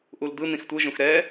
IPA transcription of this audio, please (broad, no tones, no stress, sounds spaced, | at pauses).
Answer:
ʔ u l d̪ ɯ n̪ ĩ x tʷ ɯ ʒ ũ x ɾ ɛ